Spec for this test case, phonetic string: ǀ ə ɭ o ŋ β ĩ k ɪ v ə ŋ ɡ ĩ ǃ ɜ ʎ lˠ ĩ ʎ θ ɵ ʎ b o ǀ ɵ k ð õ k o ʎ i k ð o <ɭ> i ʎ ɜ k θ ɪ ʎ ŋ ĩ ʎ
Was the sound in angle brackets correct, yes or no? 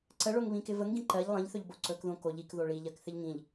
yes